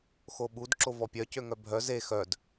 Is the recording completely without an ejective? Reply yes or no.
yes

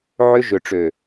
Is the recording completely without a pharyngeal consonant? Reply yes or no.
no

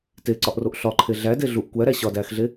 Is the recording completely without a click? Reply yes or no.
no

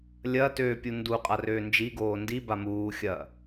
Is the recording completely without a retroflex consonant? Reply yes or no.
yes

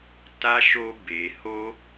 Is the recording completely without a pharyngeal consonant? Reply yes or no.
yes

